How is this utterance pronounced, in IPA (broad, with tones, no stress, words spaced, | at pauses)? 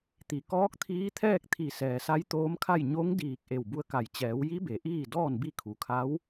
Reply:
t̪i˩˧ kɔː˧˥k̚t̪ʰiː˧˥t̪ʰɛː˥˨k̚ t̪ʰi˧˩ sɛː˩sa˧˥jt̪oː˧˥mkʰa˥˨j ɲo˧˥ŋdiː˧˩k̚ ʔe˧˩wbu˧˥ə̯ka˧˩j t͡ɕɛː˩˧wji˧˥be˩˧ ʔiː˥˨dɔː˥˨nbi˥˨kʰu˩ kʰa˧˥w